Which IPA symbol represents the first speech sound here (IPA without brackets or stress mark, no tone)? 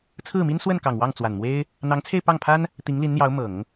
t͡sʰ